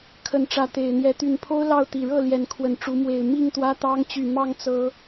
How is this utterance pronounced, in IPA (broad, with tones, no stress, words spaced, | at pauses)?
kʰə˨˦nʈ͡ʂä˨˦ t̪e˨˩ɪ̯n̪jɛ˨˦ t̪y˨˩npʰo˦ʊ̯ lɑ˥˨ʊ̯t̪i˨˩ ɻɤ˥˨ ljɛ˨˦nkʰwə˨˦nʈ͡ʂu˨˦ mwe˨˩ɪ̯ mi˥˨ŋt̪wä˦ t̪ɑ˦ŋ t͡ɕy˨˩ mɑ˥˨ŋt͡sɤ˨˦